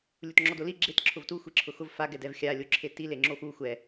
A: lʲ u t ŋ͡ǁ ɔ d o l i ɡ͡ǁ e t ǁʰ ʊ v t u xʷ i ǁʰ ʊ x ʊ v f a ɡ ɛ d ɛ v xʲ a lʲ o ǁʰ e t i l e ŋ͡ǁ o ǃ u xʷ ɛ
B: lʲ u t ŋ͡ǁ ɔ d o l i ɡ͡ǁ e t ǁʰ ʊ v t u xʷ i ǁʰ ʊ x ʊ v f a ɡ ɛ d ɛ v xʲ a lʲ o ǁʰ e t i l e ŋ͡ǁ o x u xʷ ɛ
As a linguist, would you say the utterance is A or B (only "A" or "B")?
B